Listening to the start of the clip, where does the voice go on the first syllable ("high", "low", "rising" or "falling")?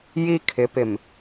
high